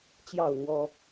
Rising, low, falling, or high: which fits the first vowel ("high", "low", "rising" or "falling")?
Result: falling